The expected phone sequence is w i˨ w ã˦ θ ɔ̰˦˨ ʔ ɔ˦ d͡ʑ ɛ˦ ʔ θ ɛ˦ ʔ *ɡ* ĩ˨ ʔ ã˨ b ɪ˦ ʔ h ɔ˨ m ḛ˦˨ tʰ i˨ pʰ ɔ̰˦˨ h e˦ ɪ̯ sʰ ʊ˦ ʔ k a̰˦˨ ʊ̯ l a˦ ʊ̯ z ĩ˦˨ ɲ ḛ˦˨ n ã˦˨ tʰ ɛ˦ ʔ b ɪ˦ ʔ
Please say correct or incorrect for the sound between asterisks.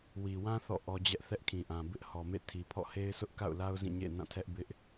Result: incorrect